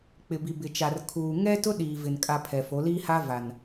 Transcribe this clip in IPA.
k͡p ɪ˨ b i˨ b ɪ˨ t͡ʃ a˨ r kʰ uː˨ ŋ ɛ˦ t ʊ˦ ɗ iː˨ v ɪ˨ n kʼ a˨ pʰ ɛ˨ f o˨˦ l iː˦ h a˦ v a˨ n

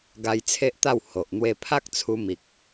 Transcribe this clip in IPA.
ɡ a˧ j t͡sʰ e˦ ʔ t̪ a˥˧ w h o˨ ʔ n̪ w e˧ pʰ a˦ k̚ t͡sʰ u˧ m i˨ k̚

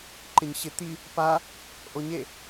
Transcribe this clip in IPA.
ǃ ɪ ɲ ɕ ɪ t̪ i | p a | ʔ o ɲ e

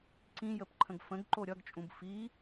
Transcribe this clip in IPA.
ǀ ĩ j ə p ǃʰ ə̃ ɡ f ə̃ ɡ ǃ o ɾʲ ʌ ɡ t͡ʃʼ ũ b f i

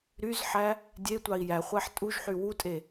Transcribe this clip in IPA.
ɾ y z ħ æ | dʲ e tʷ ɑ i̯ j æ χʷ æ ħ tʼ u ʒ ħ y w u tʼ e

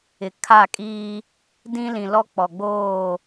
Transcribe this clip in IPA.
ɪ˨ kʰ a˦˨ kʼ iː˦ | d ĩ˦ l ĩ˨ l ɔ˦ k͡p ɔ˨ ɡ͡b oː˦˨

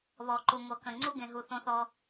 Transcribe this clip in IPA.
β ɔ˨ ǃ u˨ ŋʷ ʌ˨ k ə̃˨ ŋ͡ǀ u˦ ɡ ẽ˨ ɦ u˨ θ õ˦ θ ɔ˦

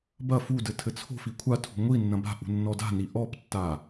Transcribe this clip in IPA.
b ɐ f u d ɘ tʰ ɘ t͡sʰ o̤ f i kʷʰ a tʰ ṳ ŋʷ i nː ɐ̃ b a̤ ʔ ṳ nː ɔ d a̤ n i ʔ ɔ p tː a

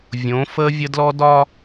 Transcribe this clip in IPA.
vʲ õ˨˦ f əː˦ vʲ ə˦ d l ɔ˦ d ɒ˦

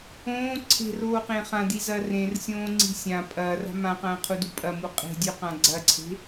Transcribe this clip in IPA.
õː ǀʰ e̤ r oː q ẽ χ ã d i z ɐː r ẽ r sʲ õː ŋ͡ǀ i̤ sʲ ã pʼ ɐː r a̤ m ã q ɐ̃ː qʰ u d u pʼ ɐ m u qʼ e̤ dʲ ʉ q ã ɡ͡ǀ ɐ ǀʰ e̤

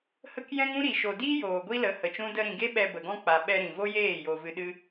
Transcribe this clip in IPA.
h ə˦ k j ɛ̃˦ ŋ ũ˦ ɾ i˨ ʃ o˨ d iː˦ j oː˨ ɡʷ i˦ l ə˨˦ h ə˨ t͡ʃ ũ˦ d ə˧ ɾ ĩ˨ ɡ e˦ ɓ ɛ˧ b ə˨ ɡ ɔ̃˦ k͡p a˨ ɓ ɛ˧ ɾ ĩ˨ v o˦ j eː˦˨ j o˧ v ɨ˧ ɗ ɨ˦

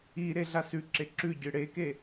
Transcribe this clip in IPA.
i ɾ e ɮ a s ʉ ǁ e ǁ ʉ ɟ ɨ ɽ e k e

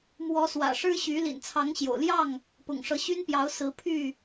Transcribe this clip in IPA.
m w ɔ˨˦ s w ä̰˨˩ ʂ ɻ̩˦ ɕ y˨˦ l ḭ˨˩ n t͡sʰ ɑ˨˦ ŋ ɕ j o̰˨˩ ʊ̯ l j ɑ˥˨ ŋ | p ʊ̰˨˩ ŋ ʂ ɤ˨˦ ɕ y˦ n p j ɑ˨˦ ʊ̯ s ɹ̩˨˦ pʰ y˥˨

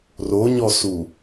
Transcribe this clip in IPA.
r o ɲ ɔ s u

